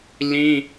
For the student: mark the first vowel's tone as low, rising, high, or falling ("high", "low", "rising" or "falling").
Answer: high